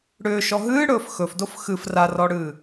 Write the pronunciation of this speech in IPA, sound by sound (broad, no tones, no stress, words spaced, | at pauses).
ɽʏːʃɔ ɦɨːɽɵːf xɵfdof xɨf rarɔɽɨː